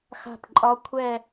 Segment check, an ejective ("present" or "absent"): present